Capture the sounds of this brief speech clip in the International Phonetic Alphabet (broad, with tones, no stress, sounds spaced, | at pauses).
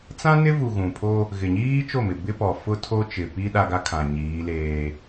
t͡s ã˦ n ɪ˦ v u˨ ɣ ũ˨ pʰ o˦ | ɣ ɪ˨ ɲ iː˦ t͡ʃ o˦˨ m ɪ˨ b ɪ˦ p ɔ˨ f ʊ˦ tʰ o˦ t͡ʃ ɪ˨ p i˦ ɗ a˦ ɡ a˦ kʰ ã˨ ɲ iː˨˦ l eː˦